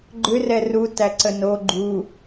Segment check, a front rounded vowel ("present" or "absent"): present